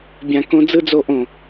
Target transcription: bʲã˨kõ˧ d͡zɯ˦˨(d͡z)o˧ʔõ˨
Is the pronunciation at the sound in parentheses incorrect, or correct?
correct